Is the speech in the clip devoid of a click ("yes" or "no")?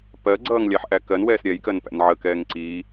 no